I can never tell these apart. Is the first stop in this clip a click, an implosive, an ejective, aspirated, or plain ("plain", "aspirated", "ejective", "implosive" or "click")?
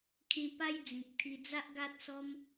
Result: aspirated